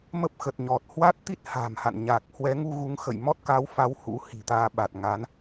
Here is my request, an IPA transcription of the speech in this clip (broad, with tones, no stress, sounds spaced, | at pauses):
m ə˦˥ p̚ x ə˨˩ t̚ ɲ ɔ˨˩ t̚ h w a˦˥ t̚ t̪ i˦˥ t̚ h a̤ː˨˩ m h a̰˧˨ n ɲ a˨˩ k̚ h w ɛ˨˦ ŋ u˧ ɣ u˨˦ ŋ x ə̰˧˨ j m ɔ˦˥ t̚ k a˨˦ w f a˨˦ w h ṵ˧˥ h i̤˨˩ t̪ aː˧ ɓ a˨˩ t̚ ŋ a˨˦ n